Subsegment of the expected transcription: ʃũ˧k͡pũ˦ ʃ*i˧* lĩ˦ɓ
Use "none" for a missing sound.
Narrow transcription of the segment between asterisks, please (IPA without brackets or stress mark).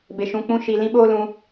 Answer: i˧